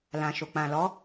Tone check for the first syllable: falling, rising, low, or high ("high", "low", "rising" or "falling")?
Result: low